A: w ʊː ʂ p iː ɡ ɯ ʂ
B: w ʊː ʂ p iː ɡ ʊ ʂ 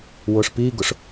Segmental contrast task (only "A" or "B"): B